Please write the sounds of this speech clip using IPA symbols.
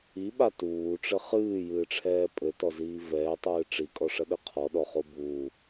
iɓa tuːʈ͡ʂɘ χɨːjɨːʈ͡ʂʰɛː pʼɘtɔziː vɛːtˤɨː ʈ͡ʂikʼɔʂɐɗɘ qʰɔɗɔχo buː

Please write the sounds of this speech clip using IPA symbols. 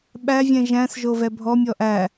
ɓæ vʲɛ̃ʒæ̃s ʒovɛbʱɔ mʲɔʔæ

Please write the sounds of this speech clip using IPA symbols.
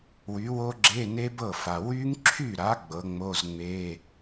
wy˨˥wo˦˥ɡ͡ǁe˧˥˧ne˦˥ bɤ˥˩fa˨ wy˦˥ŋǁʰy˥˩ɾa˨˥ ɡ͡bɤ˨˥ŋ͡mo˧˥˧zŋ͡me˧˥˧

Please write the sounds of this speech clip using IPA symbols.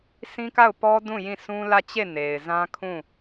sĩ˦ka˦˨ʊ̯pɔ˦dũ˦˨ jĩ˦˨sũ˦ lä˦˨t͡ɕe˦˨ ne˨ɪ̯zã˦kʰũ˦˨

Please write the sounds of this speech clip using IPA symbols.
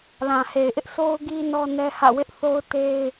lã˨he˨ɪ̯ʔɪ˦ʔ so˦ʊ̯ɡi˦ nɔ˦nɛ˦hä̰˦˨ wɪ˦ʔθo˦ʊ̯te˦ɪ̯

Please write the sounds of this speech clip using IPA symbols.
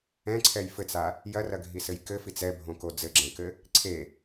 ɛ̃ǀʰɛj fɘt͡sa | jɐrɐɡʱisɘj kɘfit͡s ɛbʱõko d͡zɘɡ͡ǁɛ̃kɘ | ǀʰe

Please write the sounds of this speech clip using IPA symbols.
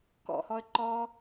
kɔ̰hɔə̯ ǃɔ

